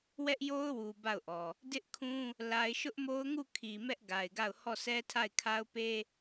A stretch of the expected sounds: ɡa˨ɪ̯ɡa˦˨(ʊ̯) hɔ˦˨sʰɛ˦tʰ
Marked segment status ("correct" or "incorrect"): correct